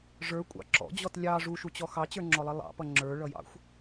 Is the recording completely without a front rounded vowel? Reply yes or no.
yes